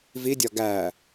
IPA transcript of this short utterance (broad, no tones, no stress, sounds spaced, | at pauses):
v i dʲ ɒ ɡ æ